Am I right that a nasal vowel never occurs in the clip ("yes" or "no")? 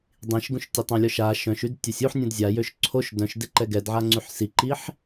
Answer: no